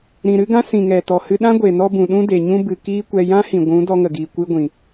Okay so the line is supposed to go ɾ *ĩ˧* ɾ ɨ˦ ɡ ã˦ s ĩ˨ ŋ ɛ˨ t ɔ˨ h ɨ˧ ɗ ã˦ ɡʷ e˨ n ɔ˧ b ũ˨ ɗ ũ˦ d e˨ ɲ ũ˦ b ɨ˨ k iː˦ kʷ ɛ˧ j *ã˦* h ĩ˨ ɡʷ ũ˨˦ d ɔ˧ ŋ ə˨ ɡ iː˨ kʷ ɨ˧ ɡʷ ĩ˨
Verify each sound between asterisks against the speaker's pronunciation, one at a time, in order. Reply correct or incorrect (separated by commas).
incorrect, correct